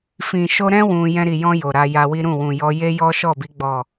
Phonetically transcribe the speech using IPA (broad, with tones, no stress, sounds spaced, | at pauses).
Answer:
f ĩ˨ ʃ o˧ ɾ ɛ̃˦ w ũ˧ j ɛ̃˧ ɾ i˨ j ɔ̃˧ j o˨ ɾ a˧ j a˧ w i˦ ɾ ũ˦˨ w ũ˨ j ɔ˧ j e˦ j ɔ˦ ʃ ɔ˦˨ b i˨˦ ɡ͡b ɔ˦˨